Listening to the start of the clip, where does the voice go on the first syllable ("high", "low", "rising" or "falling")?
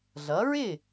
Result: rising